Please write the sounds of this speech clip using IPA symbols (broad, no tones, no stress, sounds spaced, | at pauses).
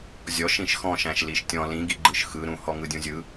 zʲ ɔ ʃ ĩ ʃ x ɔ̃ ʃ æ̃ ʃ l i ʃ tʲ ɔ̃ l ĩ ɡ i ɡ͡ǃ ɯ ʃ x ɯ ɾ ũ h ɔ ŋ ɯ dʲ ũ zʲ ɯ